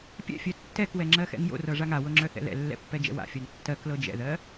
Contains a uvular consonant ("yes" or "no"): no